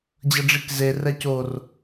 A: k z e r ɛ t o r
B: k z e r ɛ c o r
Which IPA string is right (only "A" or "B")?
B